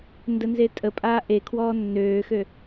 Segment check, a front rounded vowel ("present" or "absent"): present